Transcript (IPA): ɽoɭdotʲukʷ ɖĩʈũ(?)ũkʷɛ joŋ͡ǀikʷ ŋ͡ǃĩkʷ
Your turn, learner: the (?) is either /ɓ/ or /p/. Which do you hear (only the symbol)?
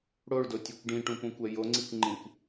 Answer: p